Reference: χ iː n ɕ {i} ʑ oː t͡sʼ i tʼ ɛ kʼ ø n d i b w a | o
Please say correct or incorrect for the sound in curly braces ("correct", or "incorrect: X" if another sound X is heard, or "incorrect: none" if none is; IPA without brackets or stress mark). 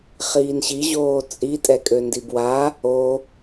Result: correct